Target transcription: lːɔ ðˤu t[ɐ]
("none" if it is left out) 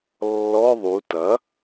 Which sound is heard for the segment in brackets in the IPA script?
ɐ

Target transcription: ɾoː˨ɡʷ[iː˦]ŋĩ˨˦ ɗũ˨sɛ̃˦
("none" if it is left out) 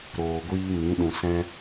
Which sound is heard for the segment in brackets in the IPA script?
iː˦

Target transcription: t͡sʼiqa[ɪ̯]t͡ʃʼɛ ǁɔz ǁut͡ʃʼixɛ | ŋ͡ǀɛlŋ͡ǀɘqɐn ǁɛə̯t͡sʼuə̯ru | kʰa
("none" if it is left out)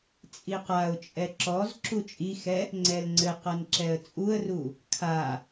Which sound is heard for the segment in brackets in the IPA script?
ʊ̯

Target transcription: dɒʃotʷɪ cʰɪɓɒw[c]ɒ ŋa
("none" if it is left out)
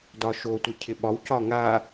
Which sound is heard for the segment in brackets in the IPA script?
c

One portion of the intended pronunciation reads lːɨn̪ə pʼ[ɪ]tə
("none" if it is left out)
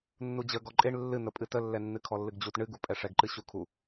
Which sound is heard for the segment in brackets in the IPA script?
ɨ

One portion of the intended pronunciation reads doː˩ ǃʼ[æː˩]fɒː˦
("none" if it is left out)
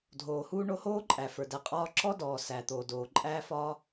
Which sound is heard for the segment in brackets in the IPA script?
æː˦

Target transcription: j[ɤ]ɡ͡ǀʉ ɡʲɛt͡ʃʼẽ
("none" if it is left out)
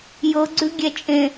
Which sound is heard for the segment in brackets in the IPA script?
ɤ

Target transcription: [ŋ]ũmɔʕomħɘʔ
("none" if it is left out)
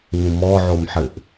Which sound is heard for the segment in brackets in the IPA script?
ŋ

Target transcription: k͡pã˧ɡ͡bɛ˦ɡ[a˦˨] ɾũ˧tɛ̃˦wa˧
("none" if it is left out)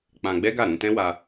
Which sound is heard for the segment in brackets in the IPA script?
a˦˨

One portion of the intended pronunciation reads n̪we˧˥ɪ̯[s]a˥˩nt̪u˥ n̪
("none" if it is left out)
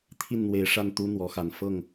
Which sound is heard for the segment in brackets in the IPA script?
ʂ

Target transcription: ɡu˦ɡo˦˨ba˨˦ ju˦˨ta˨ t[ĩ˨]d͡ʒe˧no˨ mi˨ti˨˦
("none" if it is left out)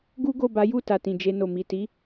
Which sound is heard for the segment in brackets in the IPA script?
ĩ˨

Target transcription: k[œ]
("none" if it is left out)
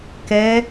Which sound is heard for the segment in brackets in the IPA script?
ɛ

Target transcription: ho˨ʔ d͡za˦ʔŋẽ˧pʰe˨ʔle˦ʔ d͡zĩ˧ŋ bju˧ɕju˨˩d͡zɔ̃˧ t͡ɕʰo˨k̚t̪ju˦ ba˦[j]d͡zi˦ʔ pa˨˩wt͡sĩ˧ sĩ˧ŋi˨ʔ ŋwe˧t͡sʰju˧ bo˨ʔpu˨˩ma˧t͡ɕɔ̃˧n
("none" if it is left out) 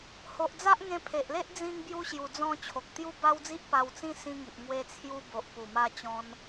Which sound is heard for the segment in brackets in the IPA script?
w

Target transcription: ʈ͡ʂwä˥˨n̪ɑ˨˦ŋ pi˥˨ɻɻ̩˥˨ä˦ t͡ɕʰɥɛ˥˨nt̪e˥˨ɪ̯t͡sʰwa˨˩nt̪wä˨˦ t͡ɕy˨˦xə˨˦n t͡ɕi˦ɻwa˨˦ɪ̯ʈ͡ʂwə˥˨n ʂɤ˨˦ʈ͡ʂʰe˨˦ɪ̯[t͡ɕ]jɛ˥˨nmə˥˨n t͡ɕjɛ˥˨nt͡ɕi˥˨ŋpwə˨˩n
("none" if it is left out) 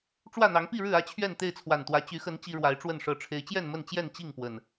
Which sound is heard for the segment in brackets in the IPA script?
t͡ɕ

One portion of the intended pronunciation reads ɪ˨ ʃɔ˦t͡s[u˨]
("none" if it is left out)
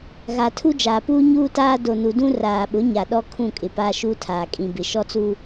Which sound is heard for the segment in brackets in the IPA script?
u˦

